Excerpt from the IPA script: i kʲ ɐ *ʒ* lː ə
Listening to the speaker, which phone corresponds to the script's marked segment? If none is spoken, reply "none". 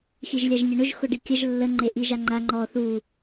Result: ʒ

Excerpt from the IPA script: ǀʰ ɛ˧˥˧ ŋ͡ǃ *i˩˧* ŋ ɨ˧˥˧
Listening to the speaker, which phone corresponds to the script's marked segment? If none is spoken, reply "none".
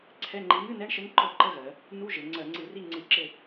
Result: i˧˥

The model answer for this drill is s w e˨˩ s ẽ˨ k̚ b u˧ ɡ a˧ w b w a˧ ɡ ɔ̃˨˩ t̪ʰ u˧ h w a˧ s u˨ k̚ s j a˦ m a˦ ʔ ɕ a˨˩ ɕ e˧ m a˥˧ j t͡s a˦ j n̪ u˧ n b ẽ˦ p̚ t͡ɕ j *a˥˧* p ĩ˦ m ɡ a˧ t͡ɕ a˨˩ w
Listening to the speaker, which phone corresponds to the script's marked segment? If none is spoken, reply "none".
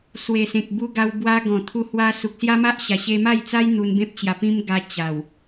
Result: a˧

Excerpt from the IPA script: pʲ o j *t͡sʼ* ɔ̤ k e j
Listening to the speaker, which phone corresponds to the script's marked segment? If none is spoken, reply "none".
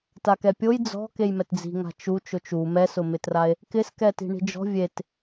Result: d͡z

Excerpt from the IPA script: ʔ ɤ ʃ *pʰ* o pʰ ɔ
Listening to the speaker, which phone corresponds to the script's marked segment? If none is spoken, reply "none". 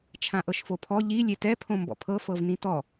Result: f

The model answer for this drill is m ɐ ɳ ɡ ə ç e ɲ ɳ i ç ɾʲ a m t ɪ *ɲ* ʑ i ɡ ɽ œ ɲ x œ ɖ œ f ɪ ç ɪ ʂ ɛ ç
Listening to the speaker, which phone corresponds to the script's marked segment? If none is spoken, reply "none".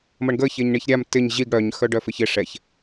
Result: ɲ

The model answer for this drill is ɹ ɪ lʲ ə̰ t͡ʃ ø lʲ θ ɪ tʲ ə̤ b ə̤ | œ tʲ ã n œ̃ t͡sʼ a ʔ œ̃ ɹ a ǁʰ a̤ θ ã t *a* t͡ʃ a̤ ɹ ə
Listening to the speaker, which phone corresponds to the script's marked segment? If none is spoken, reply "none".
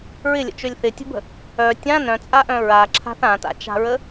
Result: a̰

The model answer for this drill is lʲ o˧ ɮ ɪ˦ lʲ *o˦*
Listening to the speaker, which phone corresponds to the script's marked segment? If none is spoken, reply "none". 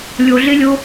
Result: o˦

